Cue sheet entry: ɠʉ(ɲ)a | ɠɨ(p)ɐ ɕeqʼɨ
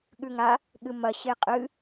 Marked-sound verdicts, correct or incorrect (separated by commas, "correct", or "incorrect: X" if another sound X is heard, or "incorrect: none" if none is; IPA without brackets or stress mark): incorrect: ŋ, incorrect: m